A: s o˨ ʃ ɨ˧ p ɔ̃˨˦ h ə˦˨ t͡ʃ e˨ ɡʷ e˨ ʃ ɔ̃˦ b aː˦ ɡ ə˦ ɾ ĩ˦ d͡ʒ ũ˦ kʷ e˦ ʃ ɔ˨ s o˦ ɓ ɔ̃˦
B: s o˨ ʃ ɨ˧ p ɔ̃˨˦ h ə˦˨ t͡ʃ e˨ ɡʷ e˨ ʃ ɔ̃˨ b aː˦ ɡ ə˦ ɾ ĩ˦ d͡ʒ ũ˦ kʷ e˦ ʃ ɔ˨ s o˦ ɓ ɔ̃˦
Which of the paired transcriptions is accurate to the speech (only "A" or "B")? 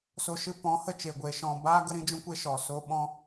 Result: B